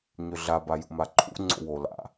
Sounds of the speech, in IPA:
ɲ ʏ ɮ a b a j ṵ m a ǃʰ ṵ ŋ͡ǀ o̰ w o l a̰

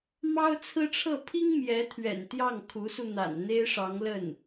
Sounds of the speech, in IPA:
m ɑ˥ ʊ̯ t͡sʰ ɹ̩˥ ʈ͡ʂʰ ɤ˥˩ pʰ i˥ ŋ m j ɛ˧˥ t̪ʰ ɥ ɛ̰˨˩ n t̪ j ɑ˥˩ ŋ kʰ u˧˥ s u˧ n̪ a̰˨˩ n n̪ e˥ ɪ̯ ʂ ɑ˧˥ ŋ l ə˥˩ n

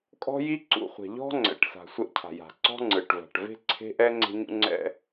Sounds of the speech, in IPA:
kʼ ɔ̤˦ j i˦ ǀ ṵ˨ χʷ ɛ̤˨ ʎ ɔ̤˦ ŋ͡ǀ ɛ̰˨ ʈ s a̤˨ sʷ ɛ˦ ʔ cʰ a̤˨ j a̤˨ ǀ ɔ̤˦ ŋ͡ǀ ɯ˨ ʈ v a̤˨ ʈ v e̤˦ ǀʰ e̤˦ ʔ ɛ˦ ŋ͡ǀ e̤˦ ɲ ṵ˦ ŋ͡ǀ ɛ̰˦

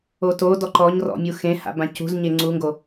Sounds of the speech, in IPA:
o t o d ɔ ǃ ɔ ɲ r ɔ̰ mʲ u x ẽ h a̰ b ã c ṳ z ɲ e ŋ͡ǀ u ŋ ɡ o

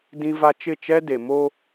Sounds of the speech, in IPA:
d ĩ˦ v a˦ t͡ʃ ɪ˦˨ t͡ʃ ɛ˦ d e˨ m o˦

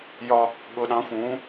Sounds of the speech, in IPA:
j ɒ˧ | ɠ ʊ˩˧ ɗ ɑ̃˩˧ xʷ ũː˩˧

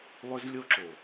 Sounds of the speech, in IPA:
lˠ ʏ˦ z lʲ o˦ ǁ o˨

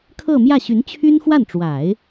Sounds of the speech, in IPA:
kʰ ɤ˥˧ m j ä˥˩ ɕ y˧˥ n t͡ɕʰ y˥ n x w a˥˩ n ʈ͡ʂ w a˨˩˦ ɪ̯

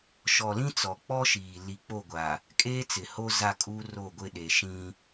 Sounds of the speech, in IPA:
ʃ ɔ˨ l ĩ˦ t͡s ɔ˨ k͡p ɔ˦ ʃ iː˨ l i˨ k͡p o˦˨ ɡʷ a˨ | kʼ eː˦ t͡s ɪ˨ h o˦ z a˦˨ kʼ u˦ r o˦˨ ɡʷ ɪ˦ ɗ e˨ ʃ ĩ˦

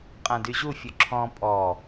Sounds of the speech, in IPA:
qʼ ã d y ʑ u fʲ u ǁʰ ɔ̃ pʼ ɔ

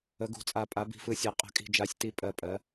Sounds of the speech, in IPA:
ə˩˧ ɡ ṳ˩˧ t͡sʼ a˨˩ pʼ a˩˧ b i̤˨˩ f ɯ˩˧ sʲ a˩˧ qʼ ə̤˨˩ kʼ i̤˨˩ d͡ʒ a˩˧ sʲ t i˩˧ pʼ ɜ˨˩ pʼ ɜ˩˧

